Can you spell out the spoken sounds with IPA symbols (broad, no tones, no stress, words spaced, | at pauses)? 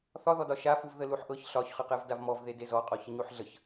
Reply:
θɒðɔdɒ ʃafuv ðəluħʔɤç ɬɒçχəqɛv davmɔv ðedezɔqʼɔ çəɲuħɮəç